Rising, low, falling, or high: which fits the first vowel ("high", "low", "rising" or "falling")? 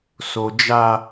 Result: high